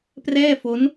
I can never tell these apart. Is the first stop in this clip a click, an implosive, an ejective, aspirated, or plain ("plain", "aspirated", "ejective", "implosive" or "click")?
plain